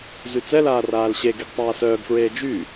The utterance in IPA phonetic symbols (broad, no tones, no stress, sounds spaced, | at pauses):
z y t͡s ɛ l aː r aː l ɕ e ɡ i ɡ tˤ aː s œː ɡ f ɹ eː d͡ʒ y